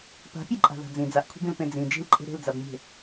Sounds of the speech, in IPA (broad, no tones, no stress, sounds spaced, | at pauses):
p a̤ pʲ e ǃʼ a̤ ð a̤ d͡z ĩ d͡z a ʔ kʷʰ i̤ b ĩ l p ẽ d͡z ĩ d͡ʒ i̤ l ǃʼ e̤ ɾ e̤ l d͡z a b mʲ e̤